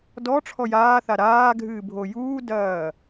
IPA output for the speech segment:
dɔʈ͡ʂʰɔ jaːθa ɾaːɡʱɨːbʱo juːdɐː

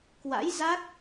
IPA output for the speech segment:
kwa̰˧˥jza˦˥k̚

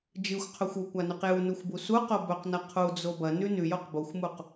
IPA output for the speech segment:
d͡ʒɨxʷqʰɵxʷ ukʷanuq junuxʷbu suqo bɵqnɐ qʰud͡zo bɐnʉ nʉjoq boxʷmuq

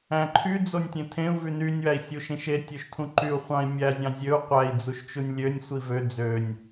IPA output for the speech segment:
æ̃ǃʰy d͡zonʲtʲẽtʰẽu̯ vynynʲ wæi̯sʲuʃẽʃe tʲøʃtʰũǃyu̯ χʷɑ̃i̯mʲæzʲɑ̃zʲøu̯ qʷæi̯ d͡zuʃt͡ʃunʲlʲønʲ sʷivø d͡zønʲ

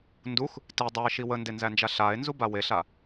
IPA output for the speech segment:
ndux | te dˤae̯ʃi wəndenzænd͡ʒa ɬae̯nzuba weɬa

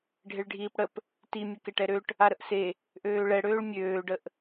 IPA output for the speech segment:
ɖʱeɭɖʱiːpɽəp | timʲə kɛʈɛɾøʈ | aɾəʔse | ʔøːɭɛɽøːɭ mʲøːɖəʔ

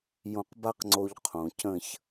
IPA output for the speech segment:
jõ˨qba˦qŋ͡ǀo˨ʎ qʰõ˨cə̃˦˨ç

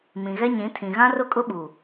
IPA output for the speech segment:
mĩ˨ɣɛ˦ɲĩ˨˦tʰĩ˨ ɣã˦rʊ˦kʼʊ˦ɓu˨

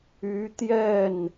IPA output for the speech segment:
y˧˥t̪jɛ˥˩n

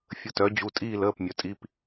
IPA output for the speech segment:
fʲə˩˧˩tœ˩˧ d͡ʑu˩˧˩tʼiː˦˨ ləː˩˧˩pmʲœ˩˧tʼi˩˧˩p

